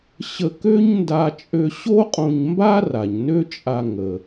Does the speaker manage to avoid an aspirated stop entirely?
yes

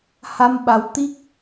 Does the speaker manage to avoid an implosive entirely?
no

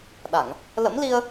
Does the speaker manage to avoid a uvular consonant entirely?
yes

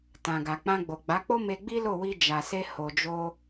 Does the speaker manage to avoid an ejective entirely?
yes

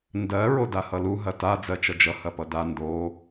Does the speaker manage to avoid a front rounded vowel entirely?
yes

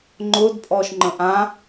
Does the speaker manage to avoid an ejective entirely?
no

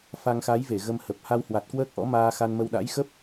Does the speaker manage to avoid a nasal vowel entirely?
yes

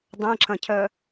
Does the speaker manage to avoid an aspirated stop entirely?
no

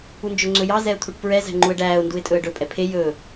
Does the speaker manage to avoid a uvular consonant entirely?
yes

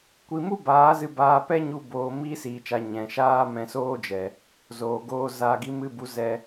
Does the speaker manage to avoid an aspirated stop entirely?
yes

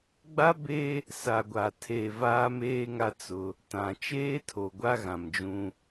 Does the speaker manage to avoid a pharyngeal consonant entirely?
yes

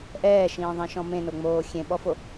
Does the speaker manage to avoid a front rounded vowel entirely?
yes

